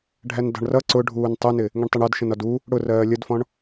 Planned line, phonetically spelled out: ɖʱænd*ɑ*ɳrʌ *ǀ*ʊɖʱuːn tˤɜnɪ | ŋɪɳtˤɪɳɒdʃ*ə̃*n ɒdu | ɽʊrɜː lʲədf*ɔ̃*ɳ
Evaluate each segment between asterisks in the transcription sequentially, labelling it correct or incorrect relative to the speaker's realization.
incorrect: ɑ̤, correct, correct, correct

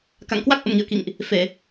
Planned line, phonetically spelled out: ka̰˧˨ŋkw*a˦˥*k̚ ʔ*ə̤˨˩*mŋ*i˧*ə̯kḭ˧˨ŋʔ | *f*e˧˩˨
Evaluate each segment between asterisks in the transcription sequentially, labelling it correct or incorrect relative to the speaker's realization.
correct, incorrect: ə̰˧˨, incorrect: ḭ˧˨, correct

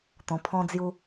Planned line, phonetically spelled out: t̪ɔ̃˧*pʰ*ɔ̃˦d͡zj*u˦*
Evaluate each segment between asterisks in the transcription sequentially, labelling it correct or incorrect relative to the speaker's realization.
correct, correct

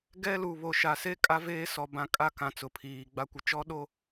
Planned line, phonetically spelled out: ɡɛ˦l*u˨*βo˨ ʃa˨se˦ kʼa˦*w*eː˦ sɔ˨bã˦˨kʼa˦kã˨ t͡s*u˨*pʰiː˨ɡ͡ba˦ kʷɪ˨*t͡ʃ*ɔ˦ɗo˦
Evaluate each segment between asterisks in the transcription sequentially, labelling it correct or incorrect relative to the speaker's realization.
correct, incorrect: v, incorrect: ʊ˨, correct

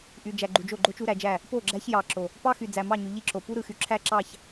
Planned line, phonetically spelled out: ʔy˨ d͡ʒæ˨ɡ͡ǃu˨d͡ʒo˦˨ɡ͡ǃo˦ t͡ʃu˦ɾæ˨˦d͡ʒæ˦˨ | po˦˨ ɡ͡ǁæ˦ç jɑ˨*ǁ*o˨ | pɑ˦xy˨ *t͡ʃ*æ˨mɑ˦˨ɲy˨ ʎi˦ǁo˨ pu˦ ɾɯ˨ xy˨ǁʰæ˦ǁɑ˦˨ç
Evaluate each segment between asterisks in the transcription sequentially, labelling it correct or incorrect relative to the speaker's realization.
correct, incorrect: d͡z

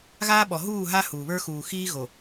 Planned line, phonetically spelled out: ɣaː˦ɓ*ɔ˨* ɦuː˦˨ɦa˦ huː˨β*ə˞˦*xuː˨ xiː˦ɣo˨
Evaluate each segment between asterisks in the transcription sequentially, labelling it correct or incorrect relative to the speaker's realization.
correct, correct

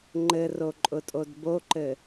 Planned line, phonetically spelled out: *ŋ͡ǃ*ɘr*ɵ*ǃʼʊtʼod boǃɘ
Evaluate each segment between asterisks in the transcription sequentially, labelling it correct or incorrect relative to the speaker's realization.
correct, incorrect: o

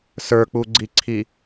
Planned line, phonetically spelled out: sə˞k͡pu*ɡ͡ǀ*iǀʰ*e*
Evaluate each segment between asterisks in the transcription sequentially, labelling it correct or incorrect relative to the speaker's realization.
correct, incorrect: i

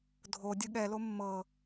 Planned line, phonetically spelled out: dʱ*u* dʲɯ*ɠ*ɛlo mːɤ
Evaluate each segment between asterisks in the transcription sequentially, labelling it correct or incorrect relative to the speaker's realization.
incorrect: o, correct

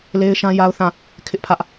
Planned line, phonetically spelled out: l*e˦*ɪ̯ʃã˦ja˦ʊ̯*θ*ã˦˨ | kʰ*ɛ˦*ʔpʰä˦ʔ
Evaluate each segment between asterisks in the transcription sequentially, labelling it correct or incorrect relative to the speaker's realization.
correct, correct, incorrect: ɪ˦

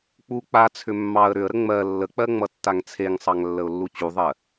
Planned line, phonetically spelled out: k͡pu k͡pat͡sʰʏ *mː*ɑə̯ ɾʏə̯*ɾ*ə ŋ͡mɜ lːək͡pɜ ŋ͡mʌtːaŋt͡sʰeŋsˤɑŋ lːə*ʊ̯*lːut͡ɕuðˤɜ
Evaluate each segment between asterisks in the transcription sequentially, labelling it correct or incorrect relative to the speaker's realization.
correct, correct, correct

